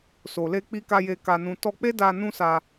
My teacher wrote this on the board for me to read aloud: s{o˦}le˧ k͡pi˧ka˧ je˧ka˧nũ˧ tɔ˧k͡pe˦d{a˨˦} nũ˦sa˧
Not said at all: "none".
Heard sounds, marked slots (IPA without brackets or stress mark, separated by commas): o˨, a˧